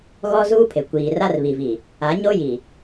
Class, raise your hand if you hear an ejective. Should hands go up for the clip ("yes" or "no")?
no